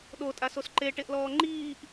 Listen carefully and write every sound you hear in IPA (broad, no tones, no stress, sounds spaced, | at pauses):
ɗ o tʼ a s o s ǃ e ʈ e ʔ l ɔː ŋ͡ǃ iː ʔ